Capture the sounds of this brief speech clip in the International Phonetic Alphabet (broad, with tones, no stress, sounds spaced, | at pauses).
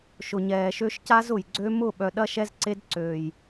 ʃ ʊ˨ ɲ ɛː˨ ʃ ø˦ ʃ c a˦ z ʊ˨ j ɡ͡ǀ ø˦ m ʊ˦˨ ɓ œ˨ ɗ ɐ˦ ʃ ɛ˦ z ǀ e˦ d ǀ øː˨ j